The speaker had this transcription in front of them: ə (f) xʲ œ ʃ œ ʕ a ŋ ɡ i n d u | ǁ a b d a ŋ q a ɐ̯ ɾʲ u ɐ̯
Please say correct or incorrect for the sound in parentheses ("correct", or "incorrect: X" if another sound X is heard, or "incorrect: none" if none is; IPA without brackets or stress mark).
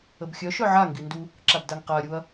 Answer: incorrect: b